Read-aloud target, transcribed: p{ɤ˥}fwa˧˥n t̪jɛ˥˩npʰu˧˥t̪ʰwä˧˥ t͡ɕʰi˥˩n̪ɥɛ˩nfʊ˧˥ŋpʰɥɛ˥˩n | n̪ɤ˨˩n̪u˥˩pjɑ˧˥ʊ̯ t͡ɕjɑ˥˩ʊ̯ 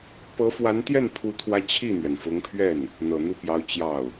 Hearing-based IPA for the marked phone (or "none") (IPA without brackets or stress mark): ɤ˧˥